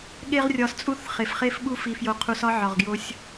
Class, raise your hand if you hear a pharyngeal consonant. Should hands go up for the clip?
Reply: yes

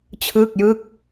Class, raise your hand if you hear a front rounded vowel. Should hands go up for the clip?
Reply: no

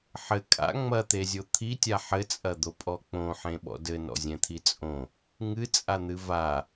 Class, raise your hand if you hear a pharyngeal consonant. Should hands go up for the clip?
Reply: yes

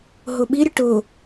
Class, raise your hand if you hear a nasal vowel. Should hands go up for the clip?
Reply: no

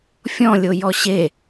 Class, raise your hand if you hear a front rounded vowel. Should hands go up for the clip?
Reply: no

